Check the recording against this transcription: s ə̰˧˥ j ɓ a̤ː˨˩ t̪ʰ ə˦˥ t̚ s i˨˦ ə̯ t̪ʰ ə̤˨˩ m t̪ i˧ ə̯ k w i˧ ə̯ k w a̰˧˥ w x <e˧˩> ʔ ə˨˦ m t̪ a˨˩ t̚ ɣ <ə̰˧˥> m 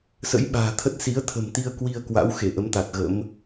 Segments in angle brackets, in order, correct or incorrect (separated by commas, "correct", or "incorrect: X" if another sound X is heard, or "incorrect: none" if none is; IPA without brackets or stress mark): correct, correct